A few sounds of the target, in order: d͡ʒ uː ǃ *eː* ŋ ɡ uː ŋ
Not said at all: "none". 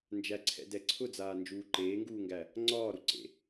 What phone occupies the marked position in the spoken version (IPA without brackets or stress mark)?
eː